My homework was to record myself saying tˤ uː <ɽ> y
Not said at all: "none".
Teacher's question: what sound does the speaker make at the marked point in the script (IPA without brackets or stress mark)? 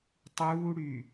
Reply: ɽ